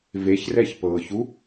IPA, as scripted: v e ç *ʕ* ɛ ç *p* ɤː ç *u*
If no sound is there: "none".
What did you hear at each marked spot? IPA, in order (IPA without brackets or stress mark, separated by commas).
r, p, u